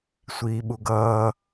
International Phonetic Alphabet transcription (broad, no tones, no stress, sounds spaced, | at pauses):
sʷ iː ɓ u ɡ ʌː